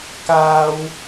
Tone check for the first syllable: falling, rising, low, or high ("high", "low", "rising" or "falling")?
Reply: high